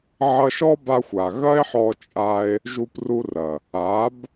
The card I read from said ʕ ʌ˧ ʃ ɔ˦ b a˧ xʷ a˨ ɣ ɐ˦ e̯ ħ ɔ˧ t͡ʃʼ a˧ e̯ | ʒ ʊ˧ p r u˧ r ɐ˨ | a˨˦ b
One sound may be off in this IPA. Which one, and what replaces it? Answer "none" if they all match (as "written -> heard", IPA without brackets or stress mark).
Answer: ʊ˧ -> u˧